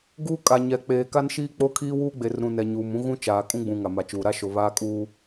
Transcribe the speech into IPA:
ɡ uː˦ kʼ a˨ ɲ ɛ˨ k͡p eː˨ k a˦ n ʃ iː˦ k͡p o˦ kʰ iː˦ w uː˦ ɡ͡b e˨ r ɾ ũ˨ n ɛ˨ ɲ uː˨ m ũ˦ ɣ ũ˦ t͡ʃ aː˨ kʼ ũ˦ ɡ͡b ũ˨ ŋ a˨ m a˨ t͡ʃ uː˨ ɾ a˦ ʃ o˨ β aː˦ kʼ uː˦

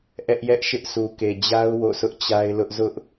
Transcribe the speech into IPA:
ʔ ɛ˦ ʔ j ɛ˦ ʔ ʃ ɪ˦ ʔ s u˨ k e˨ d͡ʑ a˦ ʊ̯ w o̰˦˨ sʰ ʊ˦ ʔ t͡ɕ a˦ ɪ̯ l ʊ˦ ʔ z ʊ˦ ʔ

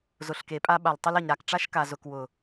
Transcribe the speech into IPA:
z ʊ˨ ɬ k e˨ pʼ a˦ ɓ a˨ l tˤ ə˦ l ɐ˨ ɲ ɾ a˨ k ʈ͡ʂ a˦ ʃ k a˨ z ʊ˨ k w ʊ˨

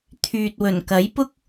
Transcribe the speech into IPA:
t̪ʰ yː˨ t̚ w ɵ˨˩ n k ɐ˨˥ j p ʊ˥ k̚

